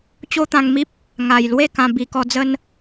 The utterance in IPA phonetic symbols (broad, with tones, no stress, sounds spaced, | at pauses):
t͡ɕ o˦ t̪ ã˧ ŋ m i˦ p̚ | ŋ a˨˩ j l w e˥˧ k ã˧ b i˨˩ k ɔ˧ d͡z ə˦ n